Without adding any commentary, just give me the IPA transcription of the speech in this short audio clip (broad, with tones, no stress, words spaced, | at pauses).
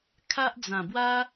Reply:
kʰa˦ʔ d͡zã˨˩bwa˦